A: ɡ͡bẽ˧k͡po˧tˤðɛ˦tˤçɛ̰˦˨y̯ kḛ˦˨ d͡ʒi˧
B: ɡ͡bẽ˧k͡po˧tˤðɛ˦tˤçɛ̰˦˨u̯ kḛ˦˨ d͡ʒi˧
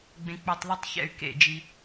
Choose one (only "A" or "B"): A